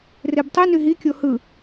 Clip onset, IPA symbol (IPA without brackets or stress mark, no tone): r